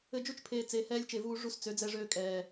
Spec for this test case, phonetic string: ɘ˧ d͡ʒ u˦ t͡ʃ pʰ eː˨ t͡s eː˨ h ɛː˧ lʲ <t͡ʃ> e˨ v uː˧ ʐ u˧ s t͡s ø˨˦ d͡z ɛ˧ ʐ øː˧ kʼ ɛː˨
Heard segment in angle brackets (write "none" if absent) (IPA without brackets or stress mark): t͡ʃ